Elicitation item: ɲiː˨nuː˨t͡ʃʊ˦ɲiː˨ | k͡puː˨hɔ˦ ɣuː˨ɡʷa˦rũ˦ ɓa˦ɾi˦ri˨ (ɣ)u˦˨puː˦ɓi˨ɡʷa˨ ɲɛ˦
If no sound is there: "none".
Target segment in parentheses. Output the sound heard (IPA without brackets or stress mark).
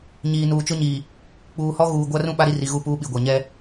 ɣ